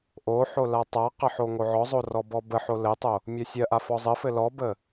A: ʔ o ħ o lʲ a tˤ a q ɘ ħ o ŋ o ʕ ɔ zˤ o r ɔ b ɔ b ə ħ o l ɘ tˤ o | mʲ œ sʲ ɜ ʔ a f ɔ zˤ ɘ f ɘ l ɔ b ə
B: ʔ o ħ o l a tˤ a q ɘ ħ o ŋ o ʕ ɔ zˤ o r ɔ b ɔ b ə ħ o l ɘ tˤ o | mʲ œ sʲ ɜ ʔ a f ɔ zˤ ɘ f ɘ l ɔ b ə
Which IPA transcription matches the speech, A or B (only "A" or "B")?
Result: B